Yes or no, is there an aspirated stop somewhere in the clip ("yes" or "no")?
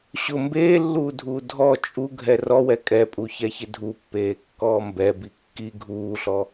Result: no